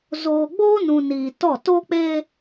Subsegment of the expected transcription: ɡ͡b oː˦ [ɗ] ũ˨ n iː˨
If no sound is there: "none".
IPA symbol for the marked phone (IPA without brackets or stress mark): n